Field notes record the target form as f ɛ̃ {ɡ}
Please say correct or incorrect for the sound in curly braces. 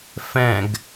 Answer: correct